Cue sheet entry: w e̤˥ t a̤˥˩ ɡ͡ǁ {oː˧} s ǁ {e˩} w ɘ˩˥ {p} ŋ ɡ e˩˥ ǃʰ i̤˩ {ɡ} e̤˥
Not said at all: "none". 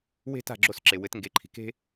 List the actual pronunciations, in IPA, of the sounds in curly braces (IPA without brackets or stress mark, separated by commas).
o˧, e˩, t, k